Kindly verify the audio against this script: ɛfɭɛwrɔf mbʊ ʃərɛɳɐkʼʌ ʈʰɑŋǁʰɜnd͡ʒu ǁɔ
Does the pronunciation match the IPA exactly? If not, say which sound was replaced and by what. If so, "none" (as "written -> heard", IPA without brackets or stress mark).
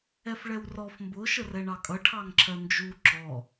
ɐ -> ɑ